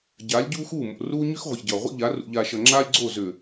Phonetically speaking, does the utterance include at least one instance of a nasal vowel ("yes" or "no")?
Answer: no